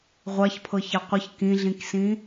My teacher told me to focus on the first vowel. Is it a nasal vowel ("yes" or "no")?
no